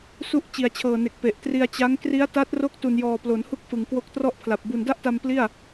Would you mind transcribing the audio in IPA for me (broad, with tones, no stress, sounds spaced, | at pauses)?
s u˦˥ ʔ t͡ɕ i˨˩ a̯ t͡ɕʰ ɤː˨˩ n e˨˩ k̚ p e˨˩ ʔ t r i˧ a̯ t͡ɕ a˦˥ ŋ k r i˦˥ a̯ t a˦˥ t̚ r o˦˥ k̚ t u˨˩ n j ɔː˨˩ p l o˩˦ n h u˥˩ k̚ f ɯ˨˩ ŋ k w o˦˥ k̚ t r ɔ˥˩ ʔ pʰ l a˨˩ p̚ b u˨˩ n d a˥˩ ʔ t a˧ m p l i˥˩ a̯